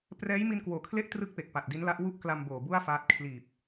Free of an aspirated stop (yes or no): no